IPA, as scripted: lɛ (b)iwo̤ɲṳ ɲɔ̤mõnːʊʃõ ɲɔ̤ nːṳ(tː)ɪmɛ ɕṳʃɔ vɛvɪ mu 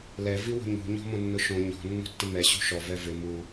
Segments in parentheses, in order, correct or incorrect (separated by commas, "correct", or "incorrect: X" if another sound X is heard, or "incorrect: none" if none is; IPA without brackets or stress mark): incorrect: v, correct